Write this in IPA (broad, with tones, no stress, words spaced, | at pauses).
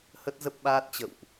hə˦˥t̚zə˦˥p̚ɓaː˦˥t̚t͡ɕə̰˧˨wʔ